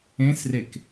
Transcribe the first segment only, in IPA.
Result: ẽ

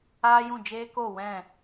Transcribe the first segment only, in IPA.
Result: aː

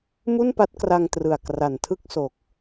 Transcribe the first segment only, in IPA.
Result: m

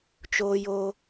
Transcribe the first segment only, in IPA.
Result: t͡ʃ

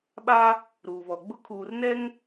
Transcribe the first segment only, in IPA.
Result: ɓ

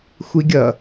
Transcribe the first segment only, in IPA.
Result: xʷ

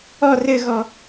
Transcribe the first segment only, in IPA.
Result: ɔ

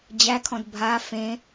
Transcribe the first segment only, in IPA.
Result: d͡ʑ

